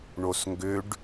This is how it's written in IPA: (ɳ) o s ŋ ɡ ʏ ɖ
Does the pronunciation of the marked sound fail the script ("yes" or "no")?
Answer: no